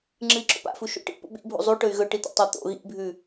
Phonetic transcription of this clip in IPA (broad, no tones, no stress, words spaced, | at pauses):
ŋ͡ǁɨi̯ǁo̰pa̰fu ʃṵʈḭ pṵɓḭbʱṵ zˤu ʈɵy̯ɣɵ ʈit̪ḛtˤɐ t̪o̰ ɣḭbʱʉ